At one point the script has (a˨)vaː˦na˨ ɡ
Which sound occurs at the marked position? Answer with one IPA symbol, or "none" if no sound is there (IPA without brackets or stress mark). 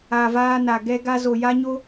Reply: a˨